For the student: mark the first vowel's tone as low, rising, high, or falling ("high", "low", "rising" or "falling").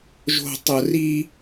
low